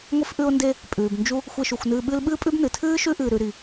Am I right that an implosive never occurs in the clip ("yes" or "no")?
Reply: no